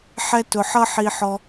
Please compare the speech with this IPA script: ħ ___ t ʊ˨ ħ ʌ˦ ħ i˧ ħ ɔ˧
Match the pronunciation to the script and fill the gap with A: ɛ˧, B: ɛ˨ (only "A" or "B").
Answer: A